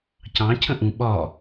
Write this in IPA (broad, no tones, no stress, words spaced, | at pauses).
cɑ̃ cʰə̃ʔũ ɓɒ